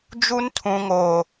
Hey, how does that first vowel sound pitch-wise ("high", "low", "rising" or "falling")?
high